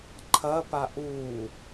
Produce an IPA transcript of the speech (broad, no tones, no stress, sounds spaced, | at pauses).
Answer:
ǃʰ ɐ p a ʔ uː